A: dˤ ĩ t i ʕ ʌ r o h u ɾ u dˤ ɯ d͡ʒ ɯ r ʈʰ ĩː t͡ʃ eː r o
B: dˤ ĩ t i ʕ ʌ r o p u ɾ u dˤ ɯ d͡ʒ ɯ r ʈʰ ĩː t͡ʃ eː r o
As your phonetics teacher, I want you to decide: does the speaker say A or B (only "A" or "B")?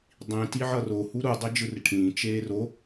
A